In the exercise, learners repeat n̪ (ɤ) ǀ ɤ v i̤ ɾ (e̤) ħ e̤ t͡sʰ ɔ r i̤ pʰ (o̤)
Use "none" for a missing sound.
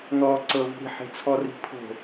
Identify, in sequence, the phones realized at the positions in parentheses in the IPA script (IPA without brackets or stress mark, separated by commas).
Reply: ɔ, i̤, o̤